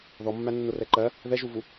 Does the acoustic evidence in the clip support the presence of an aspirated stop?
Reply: no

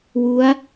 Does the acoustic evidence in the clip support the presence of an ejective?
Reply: no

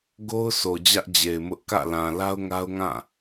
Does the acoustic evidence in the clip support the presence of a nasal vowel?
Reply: yes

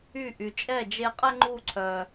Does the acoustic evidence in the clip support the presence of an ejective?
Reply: yes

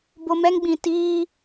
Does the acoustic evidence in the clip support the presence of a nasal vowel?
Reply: yes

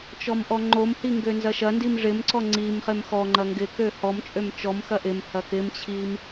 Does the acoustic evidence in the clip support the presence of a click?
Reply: yes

